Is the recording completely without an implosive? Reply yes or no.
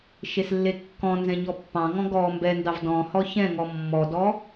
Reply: yes